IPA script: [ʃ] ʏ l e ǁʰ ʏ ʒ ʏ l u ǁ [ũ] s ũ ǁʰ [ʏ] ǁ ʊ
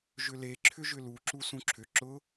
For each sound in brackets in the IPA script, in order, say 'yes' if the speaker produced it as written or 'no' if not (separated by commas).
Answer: no, no, yes